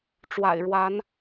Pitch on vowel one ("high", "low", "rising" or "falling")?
low